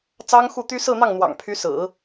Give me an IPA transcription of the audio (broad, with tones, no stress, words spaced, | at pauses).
t͡sɑ˥ŋxu˥˩t̪y˥ sɹ̩˥˧n̪ɑ˥˩ŋn̪wɑ̰˨˩ŋ pʰy˧˥sɹ̩˨˩˦